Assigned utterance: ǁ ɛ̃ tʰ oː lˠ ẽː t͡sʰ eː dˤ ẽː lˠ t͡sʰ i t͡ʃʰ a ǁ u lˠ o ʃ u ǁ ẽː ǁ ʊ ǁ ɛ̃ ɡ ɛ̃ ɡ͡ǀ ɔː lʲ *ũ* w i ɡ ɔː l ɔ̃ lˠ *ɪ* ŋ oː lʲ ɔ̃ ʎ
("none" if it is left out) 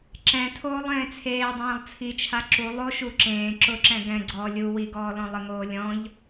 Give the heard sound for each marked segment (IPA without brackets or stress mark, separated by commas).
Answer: u, ɪ